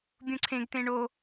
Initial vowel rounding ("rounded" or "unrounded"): rounded